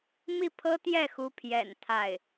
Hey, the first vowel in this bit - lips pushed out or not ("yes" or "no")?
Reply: no